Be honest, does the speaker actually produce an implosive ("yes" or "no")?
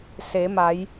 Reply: no